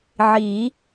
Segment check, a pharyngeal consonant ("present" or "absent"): present